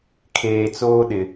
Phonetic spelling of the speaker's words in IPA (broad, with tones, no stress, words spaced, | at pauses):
kʰeː˨ t͡soː˦ɗɪ˨